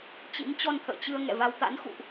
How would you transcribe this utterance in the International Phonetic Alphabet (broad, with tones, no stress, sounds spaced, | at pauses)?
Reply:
t͡ɕ ḭ˧˥ m t͡ɕ ɔ˧ n t̪ʰ ə̰ː˧˨ t͡ɕ ɨ˧ ə̯ ŋ ɛ̰˧˨ v a˧ w t̪ a̰˧˥ n x ṵ˧˨ ʔ